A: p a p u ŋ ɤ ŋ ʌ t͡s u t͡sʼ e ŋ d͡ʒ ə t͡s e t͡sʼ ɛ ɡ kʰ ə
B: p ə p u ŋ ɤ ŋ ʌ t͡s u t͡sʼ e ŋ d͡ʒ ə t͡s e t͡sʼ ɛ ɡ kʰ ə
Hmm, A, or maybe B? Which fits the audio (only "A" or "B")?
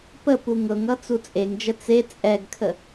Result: B